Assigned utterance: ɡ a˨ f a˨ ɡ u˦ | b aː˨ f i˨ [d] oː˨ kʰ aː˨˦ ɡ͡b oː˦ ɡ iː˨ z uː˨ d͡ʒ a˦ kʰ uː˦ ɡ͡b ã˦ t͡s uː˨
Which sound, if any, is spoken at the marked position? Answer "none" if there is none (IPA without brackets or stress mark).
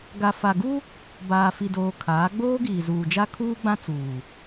d